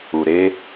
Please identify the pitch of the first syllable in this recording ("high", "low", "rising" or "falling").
low